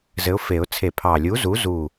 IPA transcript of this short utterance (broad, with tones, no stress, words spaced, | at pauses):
zɘ˨˥ʊ̯fe˨˩˦ʊ̯ t͡sʰe˨˩˦pʰɑ˨˩lʲu˨˥zu˨˥ zu˥˨